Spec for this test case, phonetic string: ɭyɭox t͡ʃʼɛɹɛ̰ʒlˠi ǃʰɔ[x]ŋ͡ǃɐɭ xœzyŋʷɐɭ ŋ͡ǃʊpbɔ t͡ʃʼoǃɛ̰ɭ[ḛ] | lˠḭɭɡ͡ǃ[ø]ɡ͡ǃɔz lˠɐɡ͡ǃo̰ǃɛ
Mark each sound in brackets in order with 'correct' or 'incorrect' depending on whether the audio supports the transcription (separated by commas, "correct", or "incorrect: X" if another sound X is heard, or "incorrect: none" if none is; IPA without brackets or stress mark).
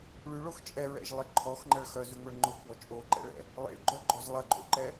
correct, incorrect: ɛ̰, incorrect: œ